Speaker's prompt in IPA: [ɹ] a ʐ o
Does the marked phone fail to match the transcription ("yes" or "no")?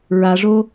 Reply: no